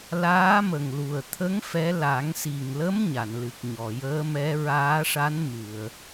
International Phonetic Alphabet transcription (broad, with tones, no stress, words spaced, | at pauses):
laː˧˥mə˨˩ŋ lu˨˩ə̯t̪ʰə˧˥ŋ fɛ˧˥ la˨˩˦ŋsi˨˩ŋlə˧˥m ɲa˨˩˨nlɨ˨˩k̚ ɲɔ˨˩˨jəː˧˥mɛ˧˥ ɹaː˧˥ʂa˧˥n mɨ˨˩˨ə̯